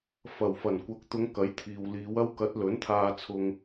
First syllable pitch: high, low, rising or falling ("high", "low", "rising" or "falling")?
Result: low